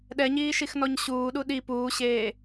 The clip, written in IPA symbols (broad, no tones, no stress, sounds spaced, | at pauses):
ɗ ɛ ɲ iː ʃ i x n ɔ ɲ ɕ uː ɗ u ɗ i p uː ɕ eː